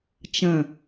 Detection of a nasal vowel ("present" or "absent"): present